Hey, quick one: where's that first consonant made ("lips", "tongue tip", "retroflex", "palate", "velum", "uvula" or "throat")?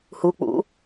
throat